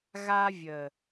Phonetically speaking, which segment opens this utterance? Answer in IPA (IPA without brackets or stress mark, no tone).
ɣ